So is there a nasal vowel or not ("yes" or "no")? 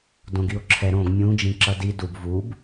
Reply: yes